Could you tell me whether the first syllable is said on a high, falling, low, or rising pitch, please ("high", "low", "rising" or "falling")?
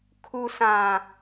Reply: high